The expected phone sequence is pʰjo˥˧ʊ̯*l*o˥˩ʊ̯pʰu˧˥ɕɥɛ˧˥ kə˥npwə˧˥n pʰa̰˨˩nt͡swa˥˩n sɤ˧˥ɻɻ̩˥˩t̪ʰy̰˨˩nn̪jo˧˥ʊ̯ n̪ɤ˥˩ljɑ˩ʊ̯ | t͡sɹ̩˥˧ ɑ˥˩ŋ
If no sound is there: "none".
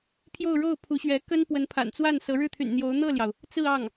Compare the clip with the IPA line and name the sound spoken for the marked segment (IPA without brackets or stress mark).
ɻ